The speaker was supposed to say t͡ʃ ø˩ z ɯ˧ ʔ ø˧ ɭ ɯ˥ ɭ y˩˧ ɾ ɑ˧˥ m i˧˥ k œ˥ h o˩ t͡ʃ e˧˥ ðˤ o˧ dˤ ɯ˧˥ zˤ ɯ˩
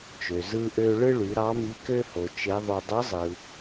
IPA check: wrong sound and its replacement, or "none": œ˥ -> ø˥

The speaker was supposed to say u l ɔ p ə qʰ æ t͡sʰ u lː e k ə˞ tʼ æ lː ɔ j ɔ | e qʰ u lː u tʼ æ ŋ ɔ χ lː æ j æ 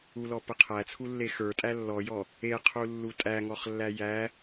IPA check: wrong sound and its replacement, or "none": k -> x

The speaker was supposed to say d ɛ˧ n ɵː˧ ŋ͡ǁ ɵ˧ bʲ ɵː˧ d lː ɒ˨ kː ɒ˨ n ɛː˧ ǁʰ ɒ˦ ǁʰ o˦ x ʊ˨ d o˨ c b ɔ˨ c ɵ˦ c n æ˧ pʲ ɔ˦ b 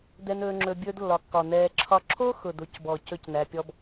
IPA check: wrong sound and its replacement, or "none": none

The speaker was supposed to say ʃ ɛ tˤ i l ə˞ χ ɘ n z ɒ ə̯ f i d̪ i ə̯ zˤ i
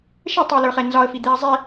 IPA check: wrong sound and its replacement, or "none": ɘ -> ɛ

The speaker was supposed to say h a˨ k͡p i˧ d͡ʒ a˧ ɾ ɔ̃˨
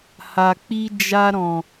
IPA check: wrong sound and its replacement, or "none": none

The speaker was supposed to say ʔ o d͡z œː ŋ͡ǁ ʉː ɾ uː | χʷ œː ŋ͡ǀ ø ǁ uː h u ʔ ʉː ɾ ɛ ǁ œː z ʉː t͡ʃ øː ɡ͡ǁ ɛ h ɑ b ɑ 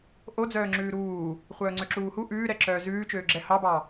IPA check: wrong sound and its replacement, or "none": none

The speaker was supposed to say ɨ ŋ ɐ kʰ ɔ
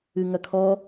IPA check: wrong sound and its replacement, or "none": none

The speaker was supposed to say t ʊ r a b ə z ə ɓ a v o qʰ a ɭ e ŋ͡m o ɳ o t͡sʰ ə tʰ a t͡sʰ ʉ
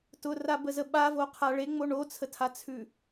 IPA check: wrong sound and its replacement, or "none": none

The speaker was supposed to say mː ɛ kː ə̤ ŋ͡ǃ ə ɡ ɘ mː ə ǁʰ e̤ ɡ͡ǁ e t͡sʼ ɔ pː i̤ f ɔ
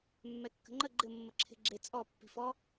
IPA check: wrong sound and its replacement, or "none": ɡ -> ɡ͡ǃ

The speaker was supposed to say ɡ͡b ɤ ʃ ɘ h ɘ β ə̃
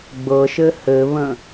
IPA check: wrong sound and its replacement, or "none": none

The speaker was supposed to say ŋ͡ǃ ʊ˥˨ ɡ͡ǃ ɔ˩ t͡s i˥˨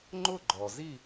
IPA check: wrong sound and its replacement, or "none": t͡s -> z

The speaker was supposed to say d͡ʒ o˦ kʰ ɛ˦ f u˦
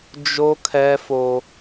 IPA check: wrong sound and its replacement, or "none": u˦ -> o˦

